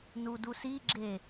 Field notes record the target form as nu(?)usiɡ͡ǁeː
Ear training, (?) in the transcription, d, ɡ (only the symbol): d